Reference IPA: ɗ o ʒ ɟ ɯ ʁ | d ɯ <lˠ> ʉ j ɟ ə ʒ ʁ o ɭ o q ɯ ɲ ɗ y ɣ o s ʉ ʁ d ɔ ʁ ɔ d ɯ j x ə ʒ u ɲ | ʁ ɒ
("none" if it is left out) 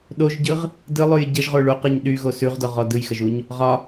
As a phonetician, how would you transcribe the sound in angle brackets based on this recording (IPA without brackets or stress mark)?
lˠ